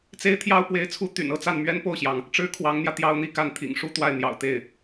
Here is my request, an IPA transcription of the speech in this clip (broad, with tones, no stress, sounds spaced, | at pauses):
t͡s e˥ ɪ̯ t̪ʰ j ɑ˥ ʊ̯ p w e˧˥ ɪ̯ t͡sʰ u˧˥ t̪ y̰˨˩ n ɤ˥˧ t͡s a˥˩ n m ɥ ɛ˥ n p o˥˩ ʊ̯ ɕ j ɑ˩ ŋ | ʈ͡ʂ ɻ̩˥ kʰ w ɑ˧˥ ŋ n̪ j ä˧ t̪ j ɑ˥ ʊ̯ n̪ i˥˧ k a˥˩ n t̪ʰ ḭ˨˩ ŋ ʂ u˥ t̪ w a˥˩ ɪ̯ n̪ j ɑ̰˨˩ ʊ̯ t̪ e˥˩ ɪ̯